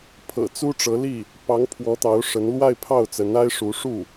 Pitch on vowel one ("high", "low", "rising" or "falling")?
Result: low